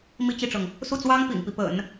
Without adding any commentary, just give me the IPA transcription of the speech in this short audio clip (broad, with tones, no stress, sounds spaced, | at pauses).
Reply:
m i˥˧ t͡ɕ i˥˩ ʈ͡ʂ ɤ˩ ŋ | s u˥˩ t͡s w ɑ˥ ŋ p ḭ˨˩ ŋ p i˦ p ə̰˨˩˦ n